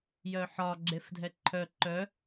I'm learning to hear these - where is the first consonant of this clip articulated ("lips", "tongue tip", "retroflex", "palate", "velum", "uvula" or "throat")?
palate